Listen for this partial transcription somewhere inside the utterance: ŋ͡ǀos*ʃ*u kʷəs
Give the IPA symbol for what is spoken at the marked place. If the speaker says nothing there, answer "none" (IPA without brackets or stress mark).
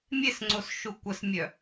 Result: ʃ